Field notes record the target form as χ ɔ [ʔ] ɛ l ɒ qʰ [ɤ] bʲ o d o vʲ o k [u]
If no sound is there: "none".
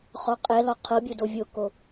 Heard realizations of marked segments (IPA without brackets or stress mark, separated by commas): qʼ, ɤ, o